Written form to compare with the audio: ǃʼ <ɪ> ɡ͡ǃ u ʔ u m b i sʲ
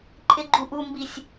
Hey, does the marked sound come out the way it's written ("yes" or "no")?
yes